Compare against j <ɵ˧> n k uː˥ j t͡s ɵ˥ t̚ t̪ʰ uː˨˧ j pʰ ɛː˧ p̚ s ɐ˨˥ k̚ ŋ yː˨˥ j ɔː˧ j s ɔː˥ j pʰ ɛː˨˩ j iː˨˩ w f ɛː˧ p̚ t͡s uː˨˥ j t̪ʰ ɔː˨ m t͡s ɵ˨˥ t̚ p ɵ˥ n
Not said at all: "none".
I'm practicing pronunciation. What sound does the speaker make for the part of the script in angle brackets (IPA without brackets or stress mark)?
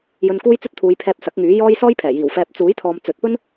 ɵ˧